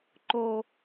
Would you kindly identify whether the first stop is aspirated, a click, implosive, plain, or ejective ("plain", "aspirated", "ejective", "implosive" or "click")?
click